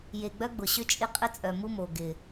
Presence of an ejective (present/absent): present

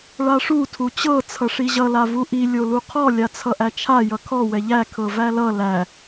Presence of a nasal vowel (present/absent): absent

